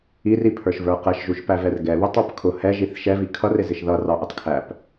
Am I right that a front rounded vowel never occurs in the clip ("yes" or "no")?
yes